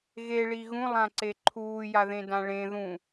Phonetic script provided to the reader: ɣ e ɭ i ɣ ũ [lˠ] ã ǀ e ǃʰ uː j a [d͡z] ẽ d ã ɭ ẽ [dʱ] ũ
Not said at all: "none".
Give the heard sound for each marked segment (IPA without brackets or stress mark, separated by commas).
lˠ, ð, ð